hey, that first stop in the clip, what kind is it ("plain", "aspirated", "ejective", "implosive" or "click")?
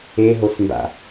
plain